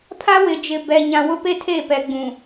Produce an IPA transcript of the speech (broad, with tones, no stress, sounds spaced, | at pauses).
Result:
pʰ a˦ w ɪ˨ d͡ʒ ɪ˨ b ɛ˨ ɲ ã˨ w ʊ˦ p e˦ tʰ e˦˨ p ɛ˨ ɡ͡b ũ˨